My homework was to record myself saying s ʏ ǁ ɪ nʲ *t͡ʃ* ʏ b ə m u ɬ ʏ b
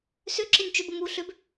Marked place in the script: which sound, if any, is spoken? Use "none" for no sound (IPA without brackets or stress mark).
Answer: t͡ʃ